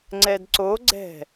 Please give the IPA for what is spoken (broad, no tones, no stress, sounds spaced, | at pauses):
ŋ͡ǀ ɛ d ǀ o ɡ͡ǀ ɛ̤